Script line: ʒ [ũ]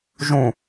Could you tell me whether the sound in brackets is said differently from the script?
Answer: no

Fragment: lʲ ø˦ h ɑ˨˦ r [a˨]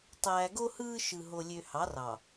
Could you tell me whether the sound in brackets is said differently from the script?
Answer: yes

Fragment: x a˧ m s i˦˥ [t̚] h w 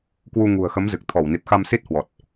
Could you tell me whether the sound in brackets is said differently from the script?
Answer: no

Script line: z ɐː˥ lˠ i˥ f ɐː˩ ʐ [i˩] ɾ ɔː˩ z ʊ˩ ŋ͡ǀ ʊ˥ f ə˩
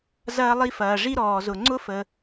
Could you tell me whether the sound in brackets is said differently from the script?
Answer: yes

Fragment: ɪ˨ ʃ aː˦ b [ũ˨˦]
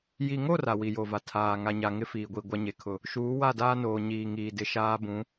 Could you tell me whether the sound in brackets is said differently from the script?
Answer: no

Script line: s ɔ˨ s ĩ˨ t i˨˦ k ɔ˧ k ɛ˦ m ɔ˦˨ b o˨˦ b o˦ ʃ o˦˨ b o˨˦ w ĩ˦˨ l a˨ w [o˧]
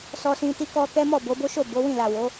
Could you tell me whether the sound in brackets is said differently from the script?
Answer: yes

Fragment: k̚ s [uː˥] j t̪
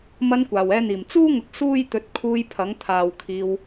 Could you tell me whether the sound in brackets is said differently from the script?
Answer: no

